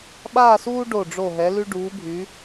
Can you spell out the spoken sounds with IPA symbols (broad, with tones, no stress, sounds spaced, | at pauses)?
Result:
ɓ aː˥˧ s uː˥ ɖ o˧˩ ɖ͡ʐ o˧˩ ɦ ɛ˩˧ l y˧ ɖ uː˩˧ bʱ y˩˧